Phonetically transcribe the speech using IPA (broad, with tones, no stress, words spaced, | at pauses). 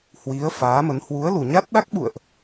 hwi˨˦ə̯ faː˨˦mə˨˦n hwu˨˦ə̯lu˨˩ɲa˦˥t̚ ɗa˦˥k̚ɓṵ˧˨ə̯ʔ